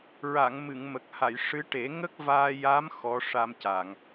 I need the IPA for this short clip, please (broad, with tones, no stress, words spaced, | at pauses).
ɹa˨˩˨ŋ mɨ˨˩˨ŋmə˨˩k̚ha˨˩˨j ʂɨ˧˥ʈe˨˩˦ ŋə˦˥k̚vaː˧ja˧˥m xɔ˧˥ʂa˧mca˨˩˨ŋ